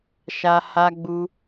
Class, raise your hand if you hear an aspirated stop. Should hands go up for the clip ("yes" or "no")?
no